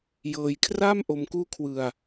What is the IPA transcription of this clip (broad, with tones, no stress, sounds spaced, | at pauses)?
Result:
j ɤː˧ j kʰ r a˥˩ m ʔ o˧ m k uː˦˥ kʰ w ɯ˧ a̯